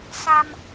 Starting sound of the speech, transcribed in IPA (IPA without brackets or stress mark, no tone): s